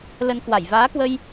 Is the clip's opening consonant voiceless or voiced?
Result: voiced